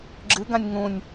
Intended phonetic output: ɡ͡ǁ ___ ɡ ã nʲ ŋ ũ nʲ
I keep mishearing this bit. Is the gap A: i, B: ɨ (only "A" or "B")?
B